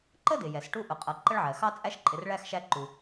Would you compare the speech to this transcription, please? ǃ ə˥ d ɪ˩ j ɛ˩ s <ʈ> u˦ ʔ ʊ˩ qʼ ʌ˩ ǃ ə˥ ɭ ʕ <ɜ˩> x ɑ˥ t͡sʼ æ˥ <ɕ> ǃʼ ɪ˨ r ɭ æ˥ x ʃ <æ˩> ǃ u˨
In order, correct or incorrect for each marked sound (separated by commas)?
correct, correct, incorrect, incorrect